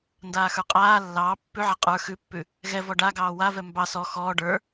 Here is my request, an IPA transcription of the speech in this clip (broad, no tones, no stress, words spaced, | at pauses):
ndaːxə˞qʼaː lːɑː pːʉʕa qʼə˞ xʉpːʉ | ɣɛvɔ ɖaɡɑː wavɛ mbɑ sɔ xɔː ɖə˞